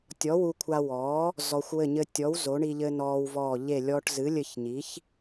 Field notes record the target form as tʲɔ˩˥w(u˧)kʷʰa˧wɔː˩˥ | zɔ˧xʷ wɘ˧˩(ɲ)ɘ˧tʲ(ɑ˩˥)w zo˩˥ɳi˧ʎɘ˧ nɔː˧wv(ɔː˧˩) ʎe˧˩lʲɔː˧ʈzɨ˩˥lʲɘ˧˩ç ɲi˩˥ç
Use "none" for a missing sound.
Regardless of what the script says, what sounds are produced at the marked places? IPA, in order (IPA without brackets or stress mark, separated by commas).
u˧, ɲ, ɔ˩˥, ɔː˧˩